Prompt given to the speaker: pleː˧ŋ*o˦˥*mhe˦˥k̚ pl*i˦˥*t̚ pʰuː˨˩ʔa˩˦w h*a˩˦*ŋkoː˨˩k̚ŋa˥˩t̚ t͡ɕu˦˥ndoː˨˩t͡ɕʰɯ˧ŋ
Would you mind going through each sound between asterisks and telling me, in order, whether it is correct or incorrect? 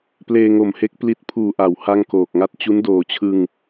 incorrect, incorrect, incorrect

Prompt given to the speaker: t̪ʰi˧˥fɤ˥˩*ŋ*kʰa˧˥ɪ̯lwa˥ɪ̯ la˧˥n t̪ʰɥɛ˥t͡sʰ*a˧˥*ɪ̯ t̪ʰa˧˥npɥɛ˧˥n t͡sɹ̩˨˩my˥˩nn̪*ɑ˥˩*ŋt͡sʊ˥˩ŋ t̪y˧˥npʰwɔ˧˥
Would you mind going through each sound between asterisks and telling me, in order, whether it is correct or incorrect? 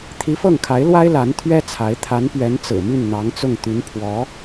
correct, correct, incorrect

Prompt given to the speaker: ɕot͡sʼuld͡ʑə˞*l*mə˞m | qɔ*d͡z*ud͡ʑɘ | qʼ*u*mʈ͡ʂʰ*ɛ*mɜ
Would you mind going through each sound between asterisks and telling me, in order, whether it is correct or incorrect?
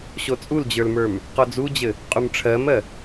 correct, correct, correct, incorrect

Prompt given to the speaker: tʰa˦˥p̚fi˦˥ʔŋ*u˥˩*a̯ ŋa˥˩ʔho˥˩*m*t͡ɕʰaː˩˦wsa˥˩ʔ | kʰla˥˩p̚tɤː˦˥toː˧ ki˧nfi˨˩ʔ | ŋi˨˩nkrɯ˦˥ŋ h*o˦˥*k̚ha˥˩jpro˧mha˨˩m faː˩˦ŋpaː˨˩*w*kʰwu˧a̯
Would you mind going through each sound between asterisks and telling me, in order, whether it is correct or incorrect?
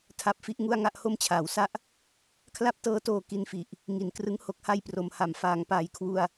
correct, correct, correct, incorrect

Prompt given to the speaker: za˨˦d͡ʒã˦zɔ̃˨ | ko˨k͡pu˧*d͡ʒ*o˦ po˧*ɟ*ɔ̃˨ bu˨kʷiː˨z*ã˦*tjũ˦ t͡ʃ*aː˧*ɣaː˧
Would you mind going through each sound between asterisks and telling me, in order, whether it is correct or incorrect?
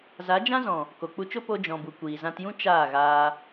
incorrect, incorrect, incorrect, incorrect

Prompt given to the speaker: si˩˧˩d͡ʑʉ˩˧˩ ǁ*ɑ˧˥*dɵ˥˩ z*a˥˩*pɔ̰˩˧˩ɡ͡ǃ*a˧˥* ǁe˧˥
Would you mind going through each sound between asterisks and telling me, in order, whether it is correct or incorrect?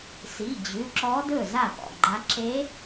incorrect, correct, correct

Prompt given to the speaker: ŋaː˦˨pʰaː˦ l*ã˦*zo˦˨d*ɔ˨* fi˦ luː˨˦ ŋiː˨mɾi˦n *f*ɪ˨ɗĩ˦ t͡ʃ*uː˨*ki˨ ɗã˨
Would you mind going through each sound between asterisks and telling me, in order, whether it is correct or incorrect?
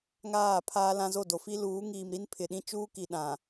correct, incorrect, incorrect, incorrect

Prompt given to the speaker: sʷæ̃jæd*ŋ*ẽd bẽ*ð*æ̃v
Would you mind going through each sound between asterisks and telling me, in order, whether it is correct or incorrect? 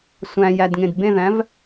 correct, correct

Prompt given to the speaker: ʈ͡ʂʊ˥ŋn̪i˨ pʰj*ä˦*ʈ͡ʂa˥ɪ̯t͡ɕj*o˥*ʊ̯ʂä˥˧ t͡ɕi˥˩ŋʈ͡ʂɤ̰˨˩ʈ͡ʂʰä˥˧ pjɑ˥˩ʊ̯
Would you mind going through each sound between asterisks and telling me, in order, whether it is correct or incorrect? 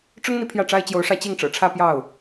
incorrect, incorrect

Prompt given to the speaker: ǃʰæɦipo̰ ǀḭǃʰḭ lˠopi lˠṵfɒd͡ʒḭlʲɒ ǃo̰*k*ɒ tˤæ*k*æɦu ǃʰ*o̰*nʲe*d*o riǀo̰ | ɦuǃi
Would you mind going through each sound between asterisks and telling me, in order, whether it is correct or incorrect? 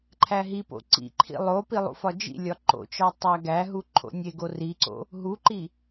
incorrect, incorrect, correct, incorrect

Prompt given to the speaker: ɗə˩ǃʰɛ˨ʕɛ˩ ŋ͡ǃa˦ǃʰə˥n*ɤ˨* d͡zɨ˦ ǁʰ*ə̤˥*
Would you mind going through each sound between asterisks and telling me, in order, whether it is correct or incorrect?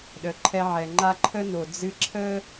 incorrect, incorrect

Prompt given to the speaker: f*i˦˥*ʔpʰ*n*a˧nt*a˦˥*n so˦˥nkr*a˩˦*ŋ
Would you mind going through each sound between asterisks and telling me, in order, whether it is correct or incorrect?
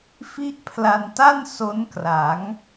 correct, incorrect, incorrect, correct

